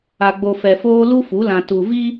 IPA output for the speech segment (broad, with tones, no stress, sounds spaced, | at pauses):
a˨ ɡ͡b o˨ f ɛ˨ f oː˦ l u˦ f u˨˦ l ã˨ t u˨ v i˦